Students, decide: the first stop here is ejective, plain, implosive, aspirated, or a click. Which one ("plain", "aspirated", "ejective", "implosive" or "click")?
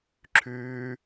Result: click